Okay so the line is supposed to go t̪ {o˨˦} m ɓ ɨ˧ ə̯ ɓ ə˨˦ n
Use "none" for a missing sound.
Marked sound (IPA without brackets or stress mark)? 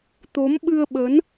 o˨˦